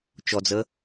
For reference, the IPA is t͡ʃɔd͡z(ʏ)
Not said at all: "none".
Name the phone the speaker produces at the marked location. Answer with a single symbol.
ə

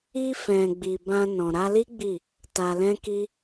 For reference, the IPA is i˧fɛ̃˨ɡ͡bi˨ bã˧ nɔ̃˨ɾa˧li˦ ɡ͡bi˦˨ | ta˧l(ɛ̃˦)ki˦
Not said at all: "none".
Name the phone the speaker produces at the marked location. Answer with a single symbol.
ɛ̃˦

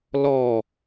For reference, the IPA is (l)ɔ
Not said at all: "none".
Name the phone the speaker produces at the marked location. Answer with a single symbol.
l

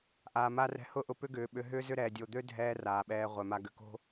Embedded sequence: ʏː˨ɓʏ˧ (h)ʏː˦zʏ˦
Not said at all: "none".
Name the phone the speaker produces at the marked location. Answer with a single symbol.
ɦ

